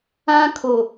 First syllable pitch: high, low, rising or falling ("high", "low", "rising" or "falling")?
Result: high